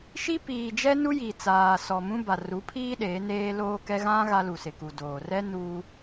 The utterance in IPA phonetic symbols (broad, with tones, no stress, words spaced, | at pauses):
ʃi˦ piː˨ d͡ʒɛ˦nu˦ji˨t͡saː˨ sɔ˨mũ˦ ba˨ru˨˦pʰiː˦ ɗeː˨˦neː˦loː˦kɛ˦ ɣã˦ ɣa˦lu˨ sɪ˨ku˨doː˨ rɛ˦ nuː˦